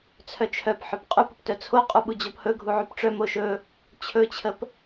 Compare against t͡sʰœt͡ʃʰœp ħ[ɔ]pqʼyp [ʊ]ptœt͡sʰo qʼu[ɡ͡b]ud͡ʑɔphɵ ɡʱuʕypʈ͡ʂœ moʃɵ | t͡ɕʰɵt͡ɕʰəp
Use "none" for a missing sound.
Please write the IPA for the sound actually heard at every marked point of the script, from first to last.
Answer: ɵ, ʊ, ɓ

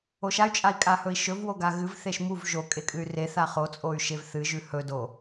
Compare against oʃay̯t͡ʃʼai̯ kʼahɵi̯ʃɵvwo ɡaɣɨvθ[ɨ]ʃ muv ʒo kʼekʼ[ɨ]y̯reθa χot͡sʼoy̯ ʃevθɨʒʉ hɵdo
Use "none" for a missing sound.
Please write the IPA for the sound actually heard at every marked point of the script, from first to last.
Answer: e, ɨ

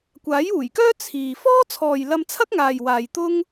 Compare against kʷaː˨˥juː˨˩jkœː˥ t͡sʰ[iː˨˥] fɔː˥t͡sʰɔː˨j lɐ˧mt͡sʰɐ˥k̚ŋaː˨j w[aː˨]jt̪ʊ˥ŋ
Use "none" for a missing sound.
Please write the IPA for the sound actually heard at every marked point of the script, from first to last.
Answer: iː˨, aː˨

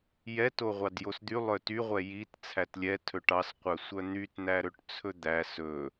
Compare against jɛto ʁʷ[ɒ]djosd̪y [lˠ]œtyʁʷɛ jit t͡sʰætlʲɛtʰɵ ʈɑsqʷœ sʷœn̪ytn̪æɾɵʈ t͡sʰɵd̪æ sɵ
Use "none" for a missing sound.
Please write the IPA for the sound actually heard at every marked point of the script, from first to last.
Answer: ɑ, lˠ

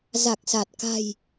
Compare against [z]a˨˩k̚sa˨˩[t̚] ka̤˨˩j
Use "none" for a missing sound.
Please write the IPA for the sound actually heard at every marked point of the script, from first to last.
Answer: z, t̚

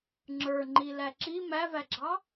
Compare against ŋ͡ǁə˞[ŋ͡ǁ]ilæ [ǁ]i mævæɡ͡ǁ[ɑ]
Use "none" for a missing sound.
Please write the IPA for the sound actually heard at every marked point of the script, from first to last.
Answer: ŋ͡ǃ, ǁ, ɑ

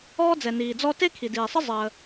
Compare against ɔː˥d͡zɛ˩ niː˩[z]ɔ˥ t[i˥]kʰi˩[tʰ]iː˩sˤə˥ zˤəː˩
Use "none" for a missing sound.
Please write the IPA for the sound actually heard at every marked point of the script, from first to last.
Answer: d͡z, e˥, d

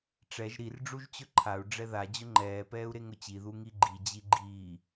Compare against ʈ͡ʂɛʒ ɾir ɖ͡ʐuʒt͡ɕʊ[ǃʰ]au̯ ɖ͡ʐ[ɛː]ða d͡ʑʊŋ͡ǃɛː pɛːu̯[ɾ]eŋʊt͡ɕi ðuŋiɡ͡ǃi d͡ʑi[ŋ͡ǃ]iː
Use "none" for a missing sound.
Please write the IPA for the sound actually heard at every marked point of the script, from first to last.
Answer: ǃʰ, ɛ, ɾ, ɡ͡ǃ

